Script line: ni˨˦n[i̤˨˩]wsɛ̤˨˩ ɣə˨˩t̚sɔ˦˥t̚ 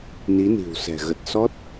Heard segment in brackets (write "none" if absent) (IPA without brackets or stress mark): i̤˨˩